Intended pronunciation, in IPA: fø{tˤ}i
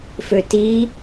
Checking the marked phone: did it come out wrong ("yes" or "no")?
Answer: yes